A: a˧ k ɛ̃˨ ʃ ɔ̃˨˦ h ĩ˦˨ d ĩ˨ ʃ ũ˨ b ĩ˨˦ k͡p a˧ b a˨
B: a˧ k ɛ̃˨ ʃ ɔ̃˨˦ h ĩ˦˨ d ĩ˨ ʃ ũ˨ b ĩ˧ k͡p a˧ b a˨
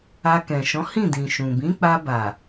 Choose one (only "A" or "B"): A